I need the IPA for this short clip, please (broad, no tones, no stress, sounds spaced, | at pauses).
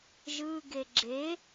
ʒ ɯ ɡ e ɡ͡ǁ e